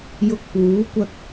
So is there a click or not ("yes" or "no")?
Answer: no